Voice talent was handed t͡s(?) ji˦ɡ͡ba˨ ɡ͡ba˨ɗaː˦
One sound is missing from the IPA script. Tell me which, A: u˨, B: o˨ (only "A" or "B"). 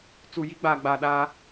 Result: A